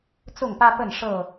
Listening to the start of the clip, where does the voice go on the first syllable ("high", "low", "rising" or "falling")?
falling